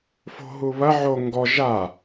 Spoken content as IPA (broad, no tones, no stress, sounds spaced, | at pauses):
f o̤ ɦ u β ɐ ʕ o ŋ ɡ ɔ ʒ a